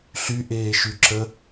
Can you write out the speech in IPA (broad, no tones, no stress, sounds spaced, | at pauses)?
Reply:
ɬ y ʔ eː ʃ y ǁ ə